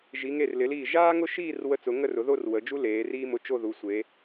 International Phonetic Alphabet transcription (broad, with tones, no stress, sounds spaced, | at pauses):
ʒ i˩˧ ŋ e˧˩ r l ɪ˩˧ l iː˧˩ ʒ aː˥ ŋ ʊ˥˧ ʃ iː˥˧ r w ə˧ t͡s ʊ˩˧ ŋ ə˥˧ r ʊ˩˧ ð o˥˧ r w ə˩˧ d͡ʒ u˥ l eː˩˧ r iː˥ m ʊ˧ t͡ʃ o˥˧ ð u˩˧ sʷ e˩˧